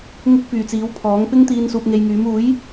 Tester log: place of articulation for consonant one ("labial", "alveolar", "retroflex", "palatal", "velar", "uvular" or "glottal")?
velar